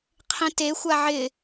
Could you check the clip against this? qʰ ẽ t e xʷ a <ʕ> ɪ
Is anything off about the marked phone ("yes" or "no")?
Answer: no